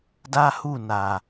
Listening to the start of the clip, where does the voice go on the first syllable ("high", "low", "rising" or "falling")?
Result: high